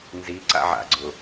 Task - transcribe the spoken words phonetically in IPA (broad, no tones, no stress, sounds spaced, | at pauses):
n z i ǀ a̰ ʕ a̰ ɡ͡ǀ ʊ